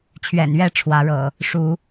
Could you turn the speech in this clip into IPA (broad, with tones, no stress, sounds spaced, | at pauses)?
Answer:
t͡ɕʰ ɥ ɛ̰˨˩ n ɥ ɛ˥˨ ʈ͡ʂʰ w ä˨˦ ɻ ɤ̰˨˩ | ʂ u˨˦